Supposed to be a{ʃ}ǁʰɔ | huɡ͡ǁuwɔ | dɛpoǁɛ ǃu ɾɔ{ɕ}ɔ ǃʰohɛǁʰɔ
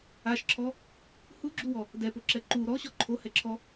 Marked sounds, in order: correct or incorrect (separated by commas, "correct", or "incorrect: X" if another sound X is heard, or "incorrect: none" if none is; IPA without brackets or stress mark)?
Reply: correct, correct